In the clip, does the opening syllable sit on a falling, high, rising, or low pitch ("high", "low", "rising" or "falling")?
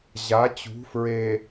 rising